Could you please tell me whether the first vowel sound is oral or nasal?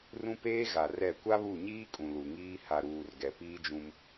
nasal